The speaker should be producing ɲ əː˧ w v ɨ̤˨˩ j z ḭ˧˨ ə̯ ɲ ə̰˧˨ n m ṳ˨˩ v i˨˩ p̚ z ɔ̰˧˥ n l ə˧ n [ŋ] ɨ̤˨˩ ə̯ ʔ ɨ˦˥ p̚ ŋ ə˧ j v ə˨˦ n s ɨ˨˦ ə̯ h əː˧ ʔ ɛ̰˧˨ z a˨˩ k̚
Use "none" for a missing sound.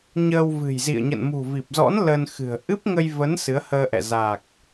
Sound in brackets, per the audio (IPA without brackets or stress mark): x